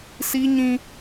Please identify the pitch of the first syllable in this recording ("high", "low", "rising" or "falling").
high